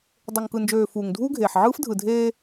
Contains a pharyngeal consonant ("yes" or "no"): yes